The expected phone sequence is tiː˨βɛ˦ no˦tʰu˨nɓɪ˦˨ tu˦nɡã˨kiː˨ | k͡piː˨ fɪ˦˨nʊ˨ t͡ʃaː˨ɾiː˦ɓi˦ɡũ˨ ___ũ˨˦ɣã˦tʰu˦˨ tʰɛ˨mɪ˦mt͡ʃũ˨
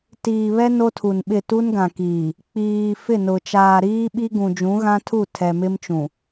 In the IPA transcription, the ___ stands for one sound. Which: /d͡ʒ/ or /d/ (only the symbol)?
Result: d͡ʒ